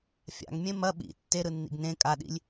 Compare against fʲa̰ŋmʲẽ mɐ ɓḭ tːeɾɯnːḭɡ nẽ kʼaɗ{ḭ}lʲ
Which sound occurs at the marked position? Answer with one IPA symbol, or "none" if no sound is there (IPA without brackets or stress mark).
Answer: ḭ